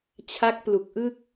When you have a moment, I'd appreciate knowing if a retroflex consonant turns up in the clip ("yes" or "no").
no